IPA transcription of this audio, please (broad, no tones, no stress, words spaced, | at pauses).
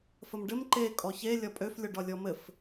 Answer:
fəmɖɘm ǃe kʼɔçe lʲɒpʼøf lʲɔɖɒlʲɔmɘf